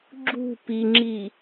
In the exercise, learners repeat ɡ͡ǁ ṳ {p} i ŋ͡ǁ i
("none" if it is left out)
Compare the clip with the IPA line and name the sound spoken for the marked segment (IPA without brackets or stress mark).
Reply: p